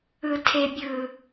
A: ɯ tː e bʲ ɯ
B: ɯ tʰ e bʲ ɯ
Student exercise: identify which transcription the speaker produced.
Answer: B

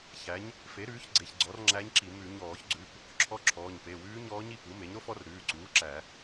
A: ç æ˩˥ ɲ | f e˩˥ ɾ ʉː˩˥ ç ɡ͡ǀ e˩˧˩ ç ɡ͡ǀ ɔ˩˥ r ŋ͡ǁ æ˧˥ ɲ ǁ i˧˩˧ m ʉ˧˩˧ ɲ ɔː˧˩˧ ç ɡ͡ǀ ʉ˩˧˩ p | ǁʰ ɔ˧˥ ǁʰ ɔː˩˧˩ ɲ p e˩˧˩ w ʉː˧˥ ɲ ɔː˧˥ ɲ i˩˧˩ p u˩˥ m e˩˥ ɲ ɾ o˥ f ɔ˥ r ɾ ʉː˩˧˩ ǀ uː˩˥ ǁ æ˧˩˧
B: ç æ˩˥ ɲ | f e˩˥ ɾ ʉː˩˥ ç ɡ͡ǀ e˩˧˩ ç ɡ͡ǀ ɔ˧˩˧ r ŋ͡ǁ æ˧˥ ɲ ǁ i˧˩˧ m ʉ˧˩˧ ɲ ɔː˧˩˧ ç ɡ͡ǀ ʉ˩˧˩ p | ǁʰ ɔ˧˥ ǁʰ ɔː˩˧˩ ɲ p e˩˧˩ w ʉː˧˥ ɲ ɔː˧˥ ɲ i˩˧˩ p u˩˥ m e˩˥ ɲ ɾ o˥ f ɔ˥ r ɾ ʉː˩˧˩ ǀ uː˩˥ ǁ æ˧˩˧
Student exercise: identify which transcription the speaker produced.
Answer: A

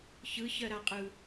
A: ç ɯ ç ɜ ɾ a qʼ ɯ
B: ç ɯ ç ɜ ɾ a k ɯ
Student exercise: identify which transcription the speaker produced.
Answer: A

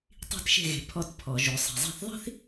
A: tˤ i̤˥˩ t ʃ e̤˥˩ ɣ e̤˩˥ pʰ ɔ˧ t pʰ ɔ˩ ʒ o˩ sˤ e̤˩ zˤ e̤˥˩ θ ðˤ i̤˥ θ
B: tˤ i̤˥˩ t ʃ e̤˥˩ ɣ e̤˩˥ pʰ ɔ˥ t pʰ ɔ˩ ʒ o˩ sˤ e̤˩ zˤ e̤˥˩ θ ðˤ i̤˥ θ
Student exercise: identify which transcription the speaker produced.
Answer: A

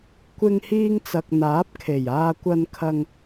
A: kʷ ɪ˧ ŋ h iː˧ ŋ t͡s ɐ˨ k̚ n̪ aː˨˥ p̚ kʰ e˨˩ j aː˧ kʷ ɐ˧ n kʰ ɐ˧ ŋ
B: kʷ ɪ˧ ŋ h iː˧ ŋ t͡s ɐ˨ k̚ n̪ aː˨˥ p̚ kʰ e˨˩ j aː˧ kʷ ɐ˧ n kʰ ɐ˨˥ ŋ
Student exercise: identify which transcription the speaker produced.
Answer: A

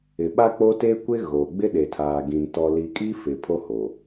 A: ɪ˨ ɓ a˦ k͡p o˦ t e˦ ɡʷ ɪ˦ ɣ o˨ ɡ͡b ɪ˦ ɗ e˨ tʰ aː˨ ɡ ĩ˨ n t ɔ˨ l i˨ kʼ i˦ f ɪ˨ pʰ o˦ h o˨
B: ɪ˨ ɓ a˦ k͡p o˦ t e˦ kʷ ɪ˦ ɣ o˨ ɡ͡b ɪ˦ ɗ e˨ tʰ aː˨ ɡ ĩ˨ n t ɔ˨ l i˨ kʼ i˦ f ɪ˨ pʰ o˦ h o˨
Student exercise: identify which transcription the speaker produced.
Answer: B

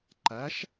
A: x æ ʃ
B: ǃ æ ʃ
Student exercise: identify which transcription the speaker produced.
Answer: B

